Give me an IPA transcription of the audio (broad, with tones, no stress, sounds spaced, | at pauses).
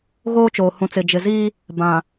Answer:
ɣ oː˦ t͡ʃ oː˨ h ũ˨ t͡s ɪ˨ d͡ʒ ɪ˨ z iː˦ | b ã˨